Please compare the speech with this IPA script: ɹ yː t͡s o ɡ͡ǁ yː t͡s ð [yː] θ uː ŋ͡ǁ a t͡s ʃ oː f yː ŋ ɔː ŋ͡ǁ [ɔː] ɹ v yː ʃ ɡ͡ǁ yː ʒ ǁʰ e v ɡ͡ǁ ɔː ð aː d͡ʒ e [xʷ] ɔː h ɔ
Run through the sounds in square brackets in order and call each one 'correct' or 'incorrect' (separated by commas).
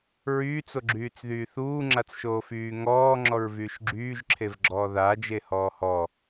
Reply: correct, incorrect, incorrect